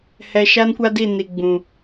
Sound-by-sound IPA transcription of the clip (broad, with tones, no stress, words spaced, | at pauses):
hɛ˨ʃa˦nkʷa˦di˦˨ ni˨ɡ͡bũ˨